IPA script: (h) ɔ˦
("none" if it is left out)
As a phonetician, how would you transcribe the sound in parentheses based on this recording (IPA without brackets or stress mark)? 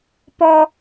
p